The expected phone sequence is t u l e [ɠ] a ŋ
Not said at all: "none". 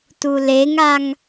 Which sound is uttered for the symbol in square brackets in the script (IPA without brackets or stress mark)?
ŋ